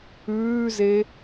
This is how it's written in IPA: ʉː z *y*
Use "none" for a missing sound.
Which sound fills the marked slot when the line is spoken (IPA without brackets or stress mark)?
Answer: e